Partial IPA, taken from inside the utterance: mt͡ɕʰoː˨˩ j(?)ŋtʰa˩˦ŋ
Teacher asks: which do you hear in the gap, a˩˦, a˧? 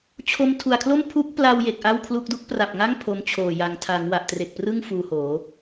a˩˦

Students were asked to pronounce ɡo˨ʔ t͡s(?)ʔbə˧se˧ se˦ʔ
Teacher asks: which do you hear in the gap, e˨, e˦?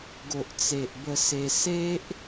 e˨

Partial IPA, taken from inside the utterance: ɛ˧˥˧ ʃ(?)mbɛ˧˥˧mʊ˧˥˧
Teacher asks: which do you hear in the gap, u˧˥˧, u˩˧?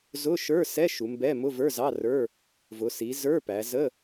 u˩˧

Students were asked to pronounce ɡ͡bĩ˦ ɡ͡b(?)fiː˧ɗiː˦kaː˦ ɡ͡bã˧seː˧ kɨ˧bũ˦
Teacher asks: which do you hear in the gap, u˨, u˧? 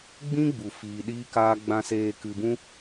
u˧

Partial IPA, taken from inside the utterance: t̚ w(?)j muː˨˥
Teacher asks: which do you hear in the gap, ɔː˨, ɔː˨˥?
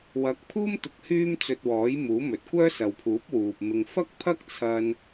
ɔː˨˥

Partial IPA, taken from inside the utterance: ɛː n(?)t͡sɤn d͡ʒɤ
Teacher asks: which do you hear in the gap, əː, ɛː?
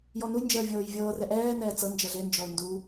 ɛː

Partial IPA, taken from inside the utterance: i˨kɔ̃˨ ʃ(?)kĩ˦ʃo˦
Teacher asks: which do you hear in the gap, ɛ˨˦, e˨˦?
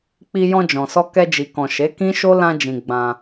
e˨˦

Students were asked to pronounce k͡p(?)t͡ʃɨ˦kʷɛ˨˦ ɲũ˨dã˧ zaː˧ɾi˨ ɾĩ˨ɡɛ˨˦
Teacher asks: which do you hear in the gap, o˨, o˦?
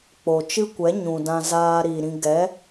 o˨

